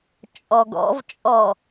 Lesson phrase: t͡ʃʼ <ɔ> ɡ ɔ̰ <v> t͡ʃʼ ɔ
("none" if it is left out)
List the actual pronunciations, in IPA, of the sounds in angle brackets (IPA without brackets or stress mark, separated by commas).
ɔ, v